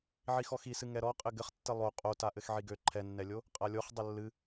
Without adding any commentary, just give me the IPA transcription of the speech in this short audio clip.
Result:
ʕixɔxisɨ ŋɛɾɔqʼɘ ɡɘχtːɘ lˠo qʼota ʔɘxʕiɡø ǃʰɛnːɛlʲo | qʼalʲoχ dˤəlːɨ

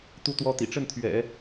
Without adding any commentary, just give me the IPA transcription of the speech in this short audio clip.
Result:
t̪u˥t̪wɔ˥t̪ḭ˨˩ ʈ͡ʂə˥˩n t̪ʰɥɛ̰˨˩˦

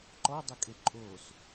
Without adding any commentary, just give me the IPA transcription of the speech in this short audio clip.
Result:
ǃɔdˤʊkʼe ǃʼos

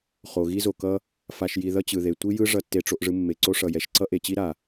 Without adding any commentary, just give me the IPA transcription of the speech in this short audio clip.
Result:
χo˨ɣi˦zo˨kʌ˦ | fa˨ʃji˨ ðʌ˦t͡ɕɯ˨ðe˨ tʷi˦jɯ˦ ʐʌ˦tːe˦ʈ͡ʂo˦ʔʐɯ˦ mːe˨ǀo˦ ʂʌ˨jɛ˨ʃ ǀʌ˦ʔe˨t͡ɕi˦ ɾa˨

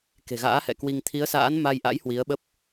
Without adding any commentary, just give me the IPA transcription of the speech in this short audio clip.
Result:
ke̤˨˩ɣa̰ː˧˥hɛ̰˧˨ kwi˧ŋ t̪ʰi˨˦ə̯sa̰ː˧˥nma˧jʔa̰˧˥j hwi˨˦ə̯ɓə˦˥p̚

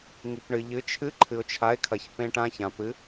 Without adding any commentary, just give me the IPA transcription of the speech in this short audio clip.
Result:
ŋi˧pɳɨ˧ʎɨ˧˥ t͡ʃʰɨ˧˥ ǃʰɨ˧ʊ̯t͡ʃʰa˧˥ɪ̯kʰɐ˧ç pẽ˧ʈã˧ çã˧pɨ˧˥

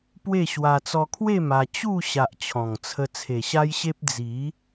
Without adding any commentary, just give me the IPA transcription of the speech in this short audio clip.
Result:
pwe˥˧ɕwa˧ t͡sɔ˧kʰwe˥˧ ma˧ t͡ɕu˥˧ɕa˨ʔ t͡ɕʰɔ̃˨˩ŋt͡sʰə˧ t͡sʰe˨˩ɕa˦jɕe˦p̚ d͡zi˨˦

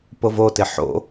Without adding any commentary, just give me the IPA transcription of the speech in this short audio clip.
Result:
povotɪ ħo̰

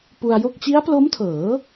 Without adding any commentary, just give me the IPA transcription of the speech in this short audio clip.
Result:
pu˧a̯jo˥˩k̚ t͡ɕi˦˥a̯plo˦˥mtʰɤː˩˦

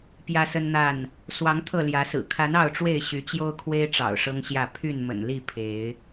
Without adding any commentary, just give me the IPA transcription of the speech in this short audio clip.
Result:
pjä˦sə˦nn̪a˥˨n | swɑ˨˦ŋ t̪ʰɤ˥˨ljä˨˦sɹ̩˨˩ kʰa˨˦n ɑ˥˨ʊ̯ʈ͡ʂwe˥˨ɪ̯ ɕy˨˦t͡ɕjo˦ʊ̯kʰwe˦ɪ̯ ʈ͡ʂɑ̰˨˩ʊ̯ʂɤ˦ŋɕjä˥˨ pʰy˥˨nmə̰˨˩nli˥˨ pʰe˨˦ɪ̯

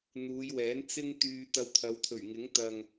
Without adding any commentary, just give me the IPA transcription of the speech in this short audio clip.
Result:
n̪uː˨˧jwɛː˨˥n t͡sɪ˥ŋt̪yː˧ t̪ɐ˧wt̪ʰɐ˨˧wt̪ʰɵ˨˩ɥŋɪ˨˥ŋ t̪ɐ˨ŋ

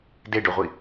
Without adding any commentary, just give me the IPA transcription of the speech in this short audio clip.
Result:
deɖoʁʷi

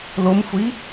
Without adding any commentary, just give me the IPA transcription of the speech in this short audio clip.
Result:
lomxʷi

